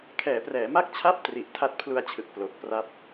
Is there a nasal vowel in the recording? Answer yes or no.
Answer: no